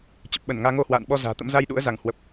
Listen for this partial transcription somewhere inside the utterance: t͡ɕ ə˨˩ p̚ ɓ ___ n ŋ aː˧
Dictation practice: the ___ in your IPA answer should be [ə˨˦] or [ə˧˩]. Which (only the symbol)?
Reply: ə˧˩